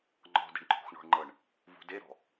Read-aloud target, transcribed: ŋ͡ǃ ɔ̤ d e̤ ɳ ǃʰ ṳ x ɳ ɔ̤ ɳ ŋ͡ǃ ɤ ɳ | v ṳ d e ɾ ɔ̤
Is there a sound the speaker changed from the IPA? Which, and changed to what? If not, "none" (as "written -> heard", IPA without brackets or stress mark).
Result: none